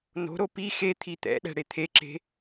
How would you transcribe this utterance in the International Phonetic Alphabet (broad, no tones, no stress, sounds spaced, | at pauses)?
n o̤ ɾ o p i x e t̪ʰ i t̪ ɛ̰ ɗ ɛ̤ ɽ e t̪ʰ e ǁ e̤